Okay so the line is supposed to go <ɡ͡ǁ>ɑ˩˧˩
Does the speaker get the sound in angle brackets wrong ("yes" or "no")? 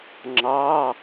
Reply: yes